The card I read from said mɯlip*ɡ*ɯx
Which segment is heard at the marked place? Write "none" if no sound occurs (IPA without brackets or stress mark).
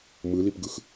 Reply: ɡ